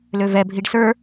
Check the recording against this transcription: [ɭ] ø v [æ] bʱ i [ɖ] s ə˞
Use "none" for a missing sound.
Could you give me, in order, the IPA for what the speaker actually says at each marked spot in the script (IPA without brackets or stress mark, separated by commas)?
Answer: l, ɛ, ɖ